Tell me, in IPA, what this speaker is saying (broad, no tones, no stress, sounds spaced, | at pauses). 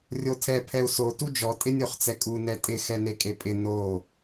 rʲ o tʰ ɛ pʰ ɛ u̯ s o t u d͡ʒ ɔ tʼ ɪ nʲ o χ t͡s ɛ kʼ u n ɛ tʼ ɪ x ɛ n e kʼ e pʼ ɪ n o